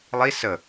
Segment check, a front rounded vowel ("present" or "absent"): absent